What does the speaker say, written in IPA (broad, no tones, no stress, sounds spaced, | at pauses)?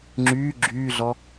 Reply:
ŋ͡ǁ yː ɡ͡ǁ yː ɮ ɔ